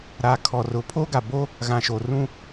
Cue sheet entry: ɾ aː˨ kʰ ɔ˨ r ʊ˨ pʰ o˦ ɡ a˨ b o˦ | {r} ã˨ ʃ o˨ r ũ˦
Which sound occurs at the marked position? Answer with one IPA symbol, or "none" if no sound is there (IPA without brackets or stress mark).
ɣ